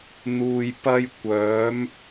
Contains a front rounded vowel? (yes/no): yes